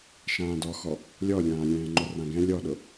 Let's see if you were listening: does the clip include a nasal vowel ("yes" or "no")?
yes